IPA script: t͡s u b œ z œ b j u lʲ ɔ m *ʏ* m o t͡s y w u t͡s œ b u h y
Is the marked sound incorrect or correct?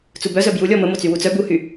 incorrect